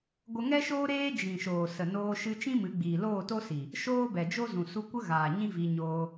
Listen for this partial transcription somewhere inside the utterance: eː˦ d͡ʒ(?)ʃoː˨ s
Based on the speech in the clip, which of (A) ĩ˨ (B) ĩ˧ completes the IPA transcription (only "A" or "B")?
A